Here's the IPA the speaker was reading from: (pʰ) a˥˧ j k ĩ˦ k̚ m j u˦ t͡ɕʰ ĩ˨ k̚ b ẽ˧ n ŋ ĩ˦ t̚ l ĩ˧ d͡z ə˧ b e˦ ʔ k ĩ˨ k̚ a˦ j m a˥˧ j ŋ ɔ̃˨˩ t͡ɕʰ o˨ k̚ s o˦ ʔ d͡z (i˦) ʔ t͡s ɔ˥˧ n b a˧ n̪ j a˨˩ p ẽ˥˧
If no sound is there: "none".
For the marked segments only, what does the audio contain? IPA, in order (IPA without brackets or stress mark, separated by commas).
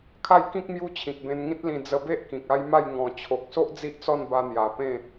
kʰ, i˦